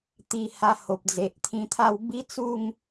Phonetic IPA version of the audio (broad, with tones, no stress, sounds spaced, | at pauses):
t̪ i˧ h a˧ h o˨ p̚ d͡z e˨ ʔ t̪ʰ ĩ˧ t̪ʰ a˥˧ w b i˦ t͡s u˥˧ ŋ